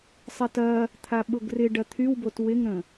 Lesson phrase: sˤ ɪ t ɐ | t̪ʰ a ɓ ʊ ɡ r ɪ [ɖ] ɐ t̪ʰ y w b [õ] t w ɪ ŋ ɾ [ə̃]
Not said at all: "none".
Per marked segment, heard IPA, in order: ɖ, o, ə̃

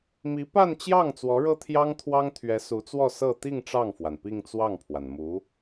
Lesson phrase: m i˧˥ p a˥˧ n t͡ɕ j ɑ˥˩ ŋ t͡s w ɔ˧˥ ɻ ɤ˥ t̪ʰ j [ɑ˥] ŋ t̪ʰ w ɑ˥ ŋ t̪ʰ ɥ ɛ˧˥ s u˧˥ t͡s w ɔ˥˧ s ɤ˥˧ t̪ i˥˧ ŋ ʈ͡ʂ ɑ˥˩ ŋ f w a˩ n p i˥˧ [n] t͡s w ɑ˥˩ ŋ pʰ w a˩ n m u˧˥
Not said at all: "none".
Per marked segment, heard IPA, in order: ɑ˥, ŋ

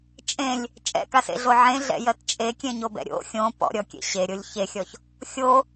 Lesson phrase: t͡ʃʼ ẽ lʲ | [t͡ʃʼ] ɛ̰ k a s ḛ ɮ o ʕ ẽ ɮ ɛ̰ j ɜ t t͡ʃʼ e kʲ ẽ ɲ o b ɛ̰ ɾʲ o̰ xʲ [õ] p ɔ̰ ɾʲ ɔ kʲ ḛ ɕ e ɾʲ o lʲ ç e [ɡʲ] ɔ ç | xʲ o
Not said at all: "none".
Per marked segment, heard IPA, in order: t͡ʃʼ, õ, xʲ

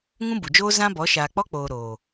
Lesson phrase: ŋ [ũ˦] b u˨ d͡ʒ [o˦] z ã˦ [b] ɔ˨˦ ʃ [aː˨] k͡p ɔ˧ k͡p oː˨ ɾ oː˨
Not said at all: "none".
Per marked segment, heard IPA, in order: ũ˦, oː˦, b, aː˨

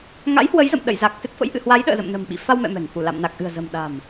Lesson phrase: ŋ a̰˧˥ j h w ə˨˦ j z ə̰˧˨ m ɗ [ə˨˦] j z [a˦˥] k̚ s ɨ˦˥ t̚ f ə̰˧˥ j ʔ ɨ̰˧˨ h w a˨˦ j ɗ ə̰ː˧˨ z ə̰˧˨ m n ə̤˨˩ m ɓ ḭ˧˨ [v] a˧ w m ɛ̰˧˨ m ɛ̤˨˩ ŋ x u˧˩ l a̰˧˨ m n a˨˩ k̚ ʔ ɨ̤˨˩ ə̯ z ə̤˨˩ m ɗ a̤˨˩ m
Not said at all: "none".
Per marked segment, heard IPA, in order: ə̰˧˨, a˨˩, f

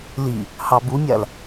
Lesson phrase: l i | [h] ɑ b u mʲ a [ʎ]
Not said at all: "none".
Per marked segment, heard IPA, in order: h, l

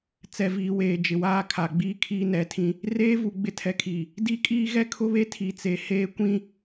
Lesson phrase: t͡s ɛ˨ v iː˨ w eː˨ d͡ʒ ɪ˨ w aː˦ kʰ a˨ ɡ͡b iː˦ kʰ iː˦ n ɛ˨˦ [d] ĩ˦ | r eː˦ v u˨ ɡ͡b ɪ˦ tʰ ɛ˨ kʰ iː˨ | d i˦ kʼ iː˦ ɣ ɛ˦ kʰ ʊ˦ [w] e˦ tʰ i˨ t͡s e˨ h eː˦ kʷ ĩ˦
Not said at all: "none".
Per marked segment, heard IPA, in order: tʰ, β

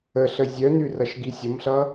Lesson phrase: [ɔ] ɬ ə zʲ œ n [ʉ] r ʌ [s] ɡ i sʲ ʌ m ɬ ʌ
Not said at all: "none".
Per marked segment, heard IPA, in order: ə, ʉ, ʃ

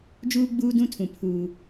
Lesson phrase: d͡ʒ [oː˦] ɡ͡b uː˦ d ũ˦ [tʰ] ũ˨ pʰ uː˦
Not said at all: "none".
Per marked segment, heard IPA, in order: uː˦, tʰ

